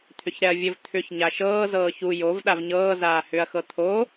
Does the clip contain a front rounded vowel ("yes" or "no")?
yes